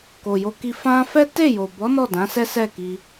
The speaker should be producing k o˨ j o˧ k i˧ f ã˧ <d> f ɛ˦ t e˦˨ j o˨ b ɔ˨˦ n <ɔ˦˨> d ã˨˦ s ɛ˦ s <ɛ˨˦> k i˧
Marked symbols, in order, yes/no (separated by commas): no, yes, no